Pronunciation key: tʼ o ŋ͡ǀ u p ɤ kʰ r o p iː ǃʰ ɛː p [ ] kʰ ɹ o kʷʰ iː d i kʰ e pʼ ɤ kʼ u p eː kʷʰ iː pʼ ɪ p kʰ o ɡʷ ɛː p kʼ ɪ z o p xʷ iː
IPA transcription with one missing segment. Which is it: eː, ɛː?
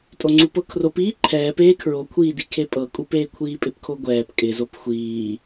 eː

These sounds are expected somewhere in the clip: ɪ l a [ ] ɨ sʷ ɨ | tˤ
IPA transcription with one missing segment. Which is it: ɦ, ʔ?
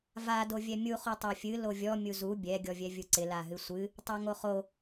ɦ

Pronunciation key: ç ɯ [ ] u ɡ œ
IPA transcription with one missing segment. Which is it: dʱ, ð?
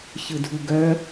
dʱ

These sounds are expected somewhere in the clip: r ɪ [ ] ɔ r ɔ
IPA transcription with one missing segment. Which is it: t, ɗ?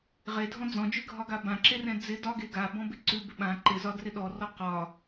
ɗ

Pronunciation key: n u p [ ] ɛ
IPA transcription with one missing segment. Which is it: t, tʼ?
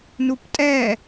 tʼ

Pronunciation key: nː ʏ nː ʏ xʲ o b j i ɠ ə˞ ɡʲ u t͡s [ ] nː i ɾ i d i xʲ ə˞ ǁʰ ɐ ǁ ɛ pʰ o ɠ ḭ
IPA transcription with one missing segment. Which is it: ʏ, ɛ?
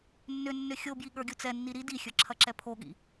ɛ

